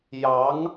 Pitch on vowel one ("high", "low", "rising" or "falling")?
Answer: rising